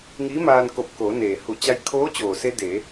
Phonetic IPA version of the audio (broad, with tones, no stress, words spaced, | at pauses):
ŋi˧˥maː˧n ko˧˩p̚ko˩˧ neː˩hu˧˩ t͡ɕa˧jkʰoː˧˥ t͡ɕoː˩se˧ deː˩˧